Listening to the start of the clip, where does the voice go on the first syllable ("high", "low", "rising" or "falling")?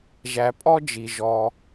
low